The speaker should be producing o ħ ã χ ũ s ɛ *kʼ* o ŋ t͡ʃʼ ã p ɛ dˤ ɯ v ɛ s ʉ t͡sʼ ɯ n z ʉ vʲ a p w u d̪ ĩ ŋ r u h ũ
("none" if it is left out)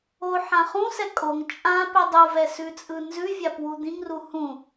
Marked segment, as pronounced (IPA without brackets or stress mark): kʼ